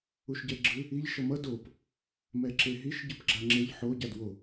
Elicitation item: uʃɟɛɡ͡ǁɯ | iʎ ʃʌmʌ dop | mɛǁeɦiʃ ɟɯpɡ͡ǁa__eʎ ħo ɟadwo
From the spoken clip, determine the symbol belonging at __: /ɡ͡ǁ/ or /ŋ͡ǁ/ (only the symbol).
ŋ͡ǁ